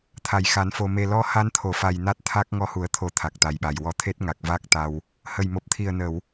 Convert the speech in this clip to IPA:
t̪ʰa˨˩˨jxa˨˩˦nfo˨˩ me˨˩lɔ˧ ha˧nt̪ʰo˨˩˨fa˨˩j na˦˥t̚t̪ʰa˦˥k̚ ŋɔ˧hu˨˩˦ə̯t̪ʰo˨˩˦ t̪ʰa˨˩k̚t̪a˨˩jɓa˨˩j wɔ˧˥ t̪ʰe˦˥t̚ŋa˨˩k̚ va˦˥k̚t̪a˧w | hə˨˩jmo˨˩p̚t̪ʰi˨˩ə̯ nə˨˩˨w

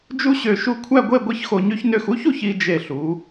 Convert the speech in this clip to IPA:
d͡ʒu˥ɕø˧˩ʃu˥˧ kʷʰæ˥˧ɡʷe˥˧ ɡʷi˥çxo˧ɲy˥çnø˥˧x u˥çu˧ç i˧d͡ʒe˧˩ɬu˩˧

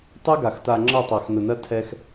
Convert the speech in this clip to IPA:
tˤɛ˦ɡa˨x ta˨ŋ͡ǁʌ˦˨ tˤa˨xnʊ˨nɐ˦tʰɛ˦x

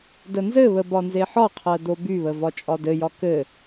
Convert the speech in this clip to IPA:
dənzɘβə bɒnzeħɒqʰɜ dobyβə vɒt͡ʃʼɒdɘjɒ kɘ

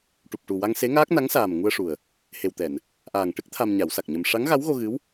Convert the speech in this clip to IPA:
ʈu˨˩p̚ʈu˨˩ wa˧ŋse˧˥ŋaː˦˥k̚ na˧˥ŋsaː˨˩m ŋu˧ə̯ʂu˨˩ə̯ | he˨˩wt̪ɛ˨˩˨n | ʔaː˨˩ŋʈɨ˦˥k̚ t̪ʰa˧mɲa˨˩˦wsa˨˩k̚ɲə˧m ʂa˧˥ŋɣa˧˥wɣo˧ɣɨ˧˥w

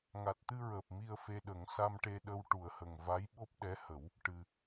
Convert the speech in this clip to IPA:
ŋa˨˩t̚t̪ɨ˧ɹəː˨˩p̚ mi˧ə̯fe˧ɗə˨˩˦ŋ sa˧mʈe˧ɗə˧w ʈu˨˩ə̯hə˨˩ŋva˧˥j ɓo˦˥p̚ɗɛ˧˥hə˨˩˦w | ʈɨ˨˩

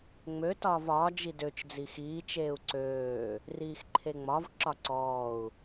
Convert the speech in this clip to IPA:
ŋ͡mø tɒːvɒː d͡ʒidøt͡ʃ d͡zixiː t͡ʃeːu̯ǀøː | riːxǃʰeŋ͡mɒv ǁɒǀɔːu̯

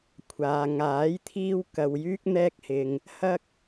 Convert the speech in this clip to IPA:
kʷʰaː˨ŋaː˨˥jt̪ʰiː˧w kɐ˨wjyː˧k̚ n̪ɛː˧k̚hɪ˨ŋ | hɐ˥k̚

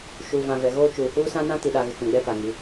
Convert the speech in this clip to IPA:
ʃu˨vã˨ vɛ˨ɣoː˦ t͡ʃuː˨huː˦sã˦nã˦ ti˨ɗa˨ɣɪ˨ kũ˨ɡ͡bɛ˦pa˨ŋi˨˦

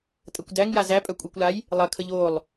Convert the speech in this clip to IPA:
tʼɐkʷdæŋja zæ pʼœkʷʼikʷlaj | lˠɐkʰəʎ olˠ

